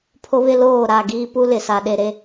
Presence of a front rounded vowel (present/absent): absent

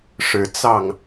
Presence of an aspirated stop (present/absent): absent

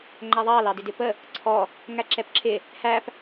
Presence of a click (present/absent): present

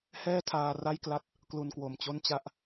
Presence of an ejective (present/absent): absent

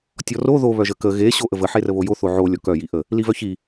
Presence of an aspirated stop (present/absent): absent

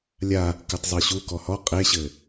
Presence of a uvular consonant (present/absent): present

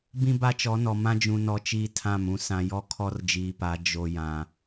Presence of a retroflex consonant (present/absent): absent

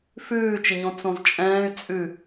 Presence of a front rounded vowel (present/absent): present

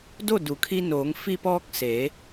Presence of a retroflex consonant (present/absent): absent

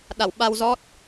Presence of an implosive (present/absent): present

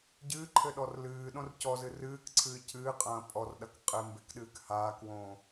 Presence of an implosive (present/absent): present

